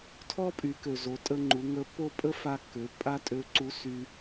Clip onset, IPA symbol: tʰ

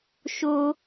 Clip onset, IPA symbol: ʃ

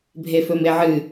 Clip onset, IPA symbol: bʱ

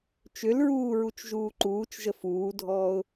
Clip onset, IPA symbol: t͡ʃ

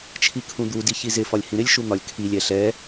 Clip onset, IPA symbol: t͡ʃʰ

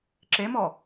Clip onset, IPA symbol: ǁ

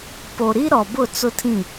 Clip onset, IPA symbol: p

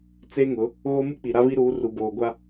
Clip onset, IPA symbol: t͡s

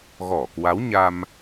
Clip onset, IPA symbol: ɣ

